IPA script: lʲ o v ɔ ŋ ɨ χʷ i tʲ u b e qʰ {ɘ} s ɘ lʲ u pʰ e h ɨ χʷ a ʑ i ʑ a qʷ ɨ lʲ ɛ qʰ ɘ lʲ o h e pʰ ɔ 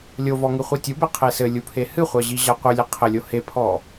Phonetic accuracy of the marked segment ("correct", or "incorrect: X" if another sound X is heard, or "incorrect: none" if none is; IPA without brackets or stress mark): incorrect: e